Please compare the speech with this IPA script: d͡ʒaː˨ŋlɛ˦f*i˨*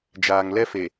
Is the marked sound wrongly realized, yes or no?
yes